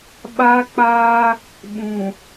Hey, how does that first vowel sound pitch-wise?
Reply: high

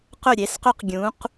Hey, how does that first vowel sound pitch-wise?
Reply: falling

